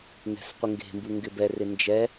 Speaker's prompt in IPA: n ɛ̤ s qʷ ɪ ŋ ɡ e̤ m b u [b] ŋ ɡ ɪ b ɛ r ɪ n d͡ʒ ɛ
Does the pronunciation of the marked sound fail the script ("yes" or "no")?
yes